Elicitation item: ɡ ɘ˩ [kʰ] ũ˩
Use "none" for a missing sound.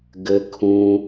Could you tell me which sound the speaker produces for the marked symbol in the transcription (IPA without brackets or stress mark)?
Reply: kʰ